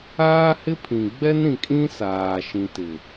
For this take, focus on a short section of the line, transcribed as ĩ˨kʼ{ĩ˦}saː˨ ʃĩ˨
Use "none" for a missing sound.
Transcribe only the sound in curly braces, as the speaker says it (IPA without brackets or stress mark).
ĩ˦